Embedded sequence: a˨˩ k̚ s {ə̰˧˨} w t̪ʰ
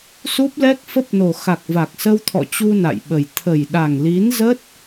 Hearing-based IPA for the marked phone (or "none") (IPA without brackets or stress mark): ə˧